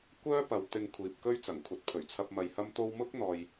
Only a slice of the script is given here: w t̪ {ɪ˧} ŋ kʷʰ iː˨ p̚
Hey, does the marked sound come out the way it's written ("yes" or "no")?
yes